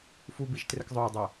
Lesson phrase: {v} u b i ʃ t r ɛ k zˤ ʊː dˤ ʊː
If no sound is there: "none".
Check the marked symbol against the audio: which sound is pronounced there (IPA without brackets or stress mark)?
f